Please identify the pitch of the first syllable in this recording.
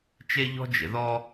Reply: high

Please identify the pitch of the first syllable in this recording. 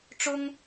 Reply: high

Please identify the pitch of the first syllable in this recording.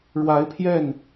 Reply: rising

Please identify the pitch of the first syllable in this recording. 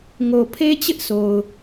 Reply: low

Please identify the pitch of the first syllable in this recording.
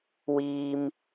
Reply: high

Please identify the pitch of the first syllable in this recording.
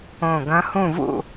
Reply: low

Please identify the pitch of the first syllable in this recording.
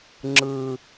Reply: low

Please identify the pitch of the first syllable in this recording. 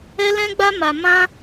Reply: high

